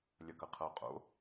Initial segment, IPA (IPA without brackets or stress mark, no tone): lʲ